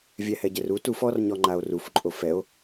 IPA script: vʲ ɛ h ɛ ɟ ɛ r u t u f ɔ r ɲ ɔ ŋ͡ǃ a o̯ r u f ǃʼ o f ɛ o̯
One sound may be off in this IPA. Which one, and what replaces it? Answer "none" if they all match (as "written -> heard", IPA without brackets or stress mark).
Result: none